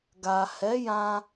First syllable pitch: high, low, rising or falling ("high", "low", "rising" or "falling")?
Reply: low